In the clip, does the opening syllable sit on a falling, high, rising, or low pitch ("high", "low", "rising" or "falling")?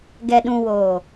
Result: low